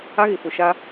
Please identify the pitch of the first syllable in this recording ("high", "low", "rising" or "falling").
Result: high